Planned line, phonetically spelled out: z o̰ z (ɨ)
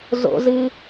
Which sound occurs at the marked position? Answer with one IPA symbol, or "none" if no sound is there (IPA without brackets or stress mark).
ɨ